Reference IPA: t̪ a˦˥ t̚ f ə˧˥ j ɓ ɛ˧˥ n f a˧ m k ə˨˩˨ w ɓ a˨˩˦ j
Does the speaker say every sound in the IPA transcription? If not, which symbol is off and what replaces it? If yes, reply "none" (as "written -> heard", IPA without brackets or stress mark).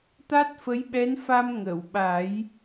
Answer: k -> ŋ